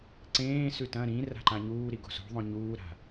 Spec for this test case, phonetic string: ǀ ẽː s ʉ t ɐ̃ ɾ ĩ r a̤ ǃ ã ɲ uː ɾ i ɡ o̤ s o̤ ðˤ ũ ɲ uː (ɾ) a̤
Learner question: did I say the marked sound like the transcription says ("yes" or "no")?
yes